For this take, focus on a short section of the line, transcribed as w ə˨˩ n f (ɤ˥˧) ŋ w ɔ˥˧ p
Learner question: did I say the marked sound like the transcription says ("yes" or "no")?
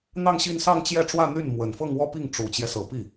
yes